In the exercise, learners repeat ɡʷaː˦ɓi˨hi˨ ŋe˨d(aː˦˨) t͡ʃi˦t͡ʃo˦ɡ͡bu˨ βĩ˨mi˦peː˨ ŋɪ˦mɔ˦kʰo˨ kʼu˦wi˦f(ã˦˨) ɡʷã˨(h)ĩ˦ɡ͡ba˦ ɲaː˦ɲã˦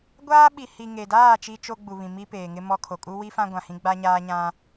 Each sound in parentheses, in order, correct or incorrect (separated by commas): correct, incorrect, correct